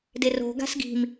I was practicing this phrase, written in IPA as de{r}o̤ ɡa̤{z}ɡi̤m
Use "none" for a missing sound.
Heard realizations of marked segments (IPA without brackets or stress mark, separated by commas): r, s